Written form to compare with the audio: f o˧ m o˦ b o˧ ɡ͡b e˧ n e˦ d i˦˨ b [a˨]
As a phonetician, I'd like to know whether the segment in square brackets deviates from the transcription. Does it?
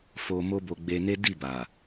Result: no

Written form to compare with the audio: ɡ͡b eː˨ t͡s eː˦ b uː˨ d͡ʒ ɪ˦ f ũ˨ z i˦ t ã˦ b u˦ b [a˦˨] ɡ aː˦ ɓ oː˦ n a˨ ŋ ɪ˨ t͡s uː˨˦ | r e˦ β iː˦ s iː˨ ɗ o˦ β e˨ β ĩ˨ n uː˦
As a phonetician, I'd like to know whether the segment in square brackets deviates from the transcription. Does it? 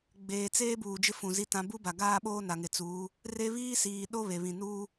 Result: yes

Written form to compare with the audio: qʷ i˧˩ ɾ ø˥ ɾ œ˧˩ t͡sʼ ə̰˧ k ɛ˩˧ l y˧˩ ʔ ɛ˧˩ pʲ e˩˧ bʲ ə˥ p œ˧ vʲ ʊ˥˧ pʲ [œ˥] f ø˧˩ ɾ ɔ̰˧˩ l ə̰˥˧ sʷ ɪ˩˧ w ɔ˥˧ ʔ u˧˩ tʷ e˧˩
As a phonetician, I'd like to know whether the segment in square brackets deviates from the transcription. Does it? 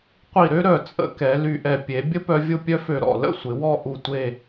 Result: no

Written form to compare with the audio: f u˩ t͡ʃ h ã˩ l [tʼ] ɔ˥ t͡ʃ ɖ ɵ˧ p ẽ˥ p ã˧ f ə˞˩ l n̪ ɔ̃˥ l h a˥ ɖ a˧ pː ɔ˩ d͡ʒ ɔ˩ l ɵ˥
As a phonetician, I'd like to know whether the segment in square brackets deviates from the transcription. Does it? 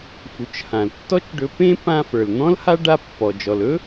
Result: yes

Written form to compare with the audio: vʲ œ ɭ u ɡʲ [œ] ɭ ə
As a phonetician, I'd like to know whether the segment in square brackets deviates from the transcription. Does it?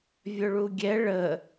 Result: yes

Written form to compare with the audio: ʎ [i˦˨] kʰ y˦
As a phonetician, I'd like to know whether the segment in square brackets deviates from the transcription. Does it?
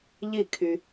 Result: no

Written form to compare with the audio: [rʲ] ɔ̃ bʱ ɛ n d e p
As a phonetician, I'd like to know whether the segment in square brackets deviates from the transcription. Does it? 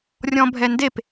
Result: no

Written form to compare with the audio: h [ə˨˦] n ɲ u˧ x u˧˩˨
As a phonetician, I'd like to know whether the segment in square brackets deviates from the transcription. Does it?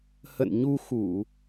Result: yes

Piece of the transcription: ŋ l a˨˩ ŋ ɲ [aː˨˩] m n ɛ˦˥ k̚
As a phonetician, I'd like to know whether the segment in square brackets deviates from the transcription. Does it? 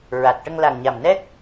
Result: yes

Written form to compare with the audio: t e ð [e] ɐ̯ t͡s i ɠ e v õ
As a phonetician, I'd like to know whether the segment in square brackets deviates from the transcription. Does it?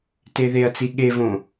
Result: no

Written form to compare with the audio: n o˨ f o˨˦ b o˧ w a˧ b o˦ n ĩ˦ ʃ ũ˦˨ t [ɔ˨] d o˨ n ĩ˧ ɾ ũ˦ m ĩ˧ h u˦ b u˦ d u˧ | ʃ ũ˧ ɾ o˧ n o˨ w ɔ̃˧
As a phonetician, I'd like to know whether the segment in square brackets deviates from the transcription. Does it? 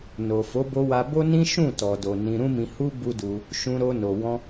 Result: no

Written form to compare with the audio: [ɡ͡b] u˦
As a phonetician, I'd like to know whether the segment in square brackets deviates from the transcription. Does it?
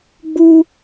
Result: no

